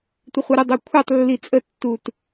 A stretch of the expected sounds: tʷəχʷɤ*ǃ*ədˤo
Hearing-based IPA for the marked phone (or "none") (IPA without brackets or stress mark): ɾ